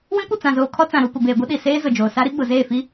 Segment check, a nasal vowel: present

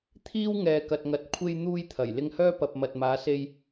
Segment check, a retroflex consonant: absent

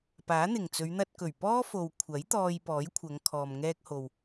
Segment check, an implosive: absent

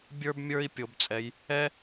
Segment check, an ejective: present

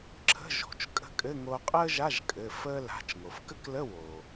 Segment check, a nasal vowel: absent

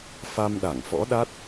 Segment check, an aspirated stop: absent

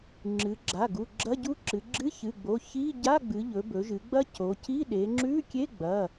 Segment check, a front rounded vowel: absent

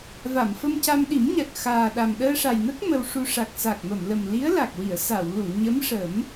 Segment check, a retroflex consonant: present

